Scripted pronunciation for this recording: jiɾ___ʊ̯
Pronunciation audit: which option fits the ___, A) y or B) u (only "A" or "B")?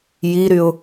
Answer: A